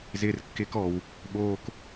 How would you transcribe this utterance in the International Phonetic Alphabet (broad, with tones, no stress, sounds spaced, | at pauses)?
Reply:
z ɪː˨ r kː ɪː˧ k ɔ˨ w | ɓ oː˧ k